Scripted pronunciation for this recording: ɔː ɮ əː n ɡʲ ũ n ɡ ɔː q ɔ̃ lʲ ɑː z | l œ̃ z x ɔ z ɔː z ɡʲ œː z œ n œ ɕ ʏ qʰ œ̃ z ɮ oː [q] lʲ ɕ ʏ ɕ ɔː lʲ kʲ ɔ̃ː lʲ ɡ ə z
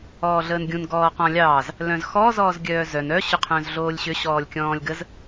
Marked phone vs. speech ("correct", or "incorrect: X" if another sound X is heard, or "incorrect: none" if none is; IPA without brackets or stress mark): incorrect: none